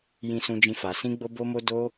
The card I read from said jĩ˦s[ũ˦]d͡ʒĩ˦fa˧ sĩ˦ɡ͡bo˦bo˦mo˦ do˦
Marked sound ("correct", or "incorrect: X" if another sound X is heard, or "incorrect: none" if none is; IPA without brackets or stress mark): correct